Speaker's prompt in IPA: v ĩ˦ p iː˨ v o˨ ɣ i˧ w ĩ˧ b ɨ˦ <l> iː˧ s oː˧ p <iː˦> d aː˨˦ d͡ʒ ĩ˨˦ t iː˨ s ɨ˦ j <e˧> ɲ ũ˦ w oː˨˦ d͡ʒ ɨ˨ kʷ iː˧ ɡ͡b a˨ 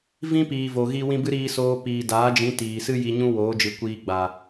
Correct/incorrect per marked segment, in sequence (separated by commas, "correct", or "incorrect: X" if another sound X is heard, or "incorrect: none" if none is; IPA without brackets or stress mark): incorrect: ɾ, incorrect: iː˨, incorrect: i˧